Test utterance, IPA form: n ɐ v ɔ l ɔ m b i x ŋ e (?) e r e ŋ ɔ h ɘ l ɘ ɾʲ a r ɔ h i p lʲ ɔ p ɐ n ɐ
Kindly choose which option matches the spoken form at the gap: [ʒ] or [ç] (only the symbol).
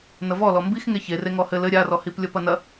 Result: ç